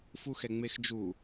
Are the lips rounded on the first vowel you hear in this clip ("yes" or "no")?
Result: yes